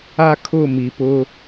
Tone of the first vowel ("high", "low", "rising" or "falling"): high